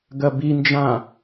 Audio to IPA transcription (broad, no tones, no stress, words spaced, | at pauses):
ɡɐbind͡ʒã